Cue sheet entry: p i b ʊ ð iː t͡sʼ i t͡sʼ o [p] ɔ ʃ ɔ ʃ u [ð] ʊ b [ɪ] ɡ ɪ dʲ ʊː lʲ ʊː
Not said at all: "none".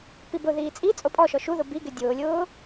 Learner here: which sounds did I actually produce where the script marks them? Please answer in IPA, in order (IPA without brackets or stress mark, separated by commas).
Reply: pʼ, ð, i